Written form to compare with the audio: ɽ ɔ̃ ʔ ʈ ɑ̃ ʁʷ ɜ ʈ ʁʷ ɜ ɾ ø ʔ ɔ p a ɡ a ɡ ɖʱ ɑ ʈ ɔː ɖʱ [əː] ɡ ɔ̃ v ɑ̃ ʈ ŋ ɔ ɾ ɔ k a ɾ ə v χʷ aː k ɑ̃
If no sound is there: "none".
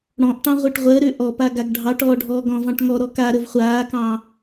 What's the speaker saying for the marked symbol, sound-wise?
ɔː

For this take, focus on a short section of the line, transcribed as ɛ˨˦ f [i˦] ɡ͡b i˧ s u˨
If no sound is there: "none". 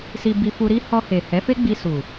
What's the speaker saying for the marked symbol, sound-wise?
e˦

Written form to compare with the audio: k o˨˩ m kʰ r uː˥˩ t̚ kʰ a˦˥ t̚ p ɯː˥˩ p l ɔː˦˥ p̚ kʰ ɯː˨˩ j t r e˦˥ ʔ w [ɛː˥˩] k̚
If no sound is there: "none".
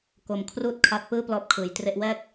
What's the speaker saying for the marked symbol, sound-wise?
ɛː˥˩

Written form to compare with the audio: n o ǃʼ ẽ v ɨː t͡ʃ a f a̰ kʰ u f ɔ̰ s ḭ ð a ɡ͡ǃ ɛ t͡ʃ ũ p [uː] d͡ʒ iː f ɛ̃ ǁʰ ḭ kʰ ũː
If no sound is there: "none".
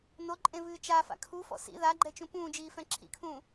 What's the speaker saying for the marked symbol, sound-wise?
ũː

